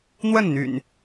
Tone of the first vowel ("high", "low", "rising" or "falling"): falling